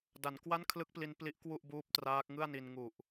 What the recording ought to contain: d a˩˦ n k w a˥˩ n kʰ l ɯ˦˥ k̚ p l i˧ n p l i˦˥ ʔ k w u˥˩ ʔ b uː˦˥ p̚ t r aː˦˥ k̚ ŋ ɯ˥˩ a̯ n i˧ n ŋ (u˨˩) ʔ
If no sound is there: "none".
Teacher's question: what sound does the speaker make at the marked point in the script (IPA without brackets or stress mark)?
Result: u˨˩